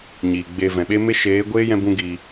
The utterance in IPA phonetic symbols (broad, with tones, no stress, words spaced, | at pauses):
ɲiː˨ɡ͡be˧ vɛ̃˨ɓe˦me˦ ʃeː˨˦ɡʷeː˦ jɛ̃˦bũ˦ɡiː˧